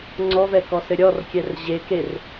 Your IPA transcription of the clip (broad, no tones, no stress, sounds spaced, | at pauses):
ŋ͡ǀ ɔ v ɛ k ɔ s ɘ ɾʲ ɔ r kʲ ɛ r ʑ e k e r